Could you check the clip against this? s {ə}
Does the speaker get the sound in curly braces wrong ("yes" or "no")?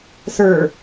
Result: yes